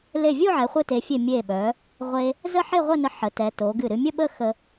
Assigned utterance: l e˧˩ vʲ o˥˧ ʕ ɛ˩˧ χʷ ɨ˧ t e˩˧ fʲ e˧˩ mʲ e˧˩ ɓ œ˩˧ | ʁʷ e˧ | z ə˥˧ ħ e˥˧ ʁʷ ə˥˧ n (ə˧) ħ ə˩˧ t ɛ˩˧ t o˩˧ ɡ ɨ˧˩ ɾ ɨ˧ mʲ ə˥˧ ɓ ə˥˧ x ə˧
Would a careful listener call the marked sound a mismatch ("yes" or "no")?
no